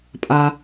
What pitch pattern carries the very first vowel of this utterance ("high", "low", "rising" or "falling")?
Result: low